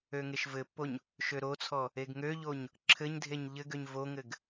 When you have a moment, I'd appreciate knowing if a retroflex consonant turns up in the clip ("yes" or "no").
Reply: no